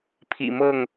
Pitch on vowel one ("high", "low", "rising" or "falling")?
low